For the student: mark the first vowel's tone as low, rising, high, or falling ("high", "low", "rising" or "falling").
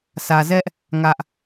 low